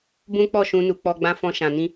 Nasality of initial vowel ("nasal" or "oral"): nasal